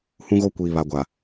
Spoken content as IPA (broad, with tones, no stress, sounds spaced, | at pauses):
h ũ˦ ɣ o˦ kʷ iː˨ β a˨ ɡʷ a˨